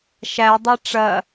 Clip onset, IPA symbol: ʃ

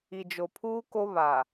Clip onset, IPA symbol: i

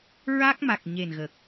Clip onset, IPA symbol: ɹ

